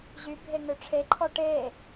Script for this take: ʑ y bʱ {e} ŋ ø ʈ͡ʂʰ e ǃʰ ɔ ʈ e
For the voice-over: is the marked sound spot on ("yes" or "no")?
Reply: yes